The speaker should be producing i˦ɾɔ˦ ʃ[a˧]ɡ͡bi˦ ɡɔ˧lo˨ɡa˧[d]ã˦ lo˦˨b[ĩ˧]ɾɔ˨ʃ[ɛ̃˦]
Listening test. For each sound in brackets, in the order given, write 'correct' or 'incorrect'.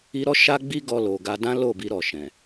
incorrect, correct, incorrect, incorrect

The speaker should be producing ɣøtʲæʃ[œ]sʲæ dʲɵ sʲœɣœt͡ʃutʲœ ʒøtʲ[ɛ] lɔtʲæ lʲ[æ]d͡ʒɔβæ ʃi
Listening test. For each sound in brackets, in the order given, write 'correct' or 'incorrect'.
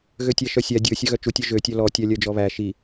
correct, incorrect, incorrect

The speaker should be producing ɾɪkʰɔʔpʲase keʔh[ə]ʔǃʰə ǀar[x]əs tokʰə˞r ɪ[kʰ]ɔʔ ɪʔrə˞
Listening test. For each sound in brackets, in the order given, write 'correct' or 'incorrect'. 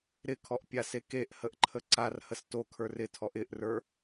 correct, incorrect, incorrect

